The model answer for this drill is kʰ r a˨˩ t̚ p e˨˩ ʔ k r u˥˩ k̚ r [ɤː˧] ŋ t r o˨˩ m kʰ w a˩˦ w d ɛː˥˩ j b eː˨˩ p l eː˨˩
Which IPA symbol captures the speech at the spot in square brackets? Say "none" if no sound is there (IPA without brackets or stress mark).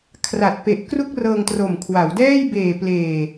ɤː˧